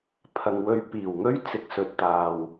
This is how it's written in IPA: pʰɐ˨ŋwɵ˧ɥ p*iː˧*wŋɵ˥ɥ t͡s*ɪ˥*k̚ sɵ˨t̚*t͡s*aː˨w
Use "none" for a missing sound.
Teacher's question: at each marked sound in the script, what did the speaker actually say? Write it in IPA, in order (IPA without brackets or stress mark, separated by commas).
iː˨˩, ɪ˨, t̪